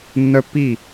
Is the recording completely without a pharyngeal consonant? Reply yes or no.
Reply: yes